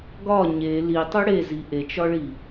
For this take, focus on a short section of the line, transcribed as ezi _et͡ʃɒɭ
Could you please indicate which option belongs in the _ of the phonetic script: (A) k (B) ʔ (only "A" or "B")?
B